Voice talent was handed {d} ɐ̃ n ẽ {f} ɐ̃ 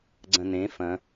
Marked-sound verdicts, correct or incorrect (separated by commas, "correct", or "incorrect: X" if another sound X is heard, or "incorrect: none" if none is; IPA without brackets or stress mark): incorrect: ɡ͡ǀ, correct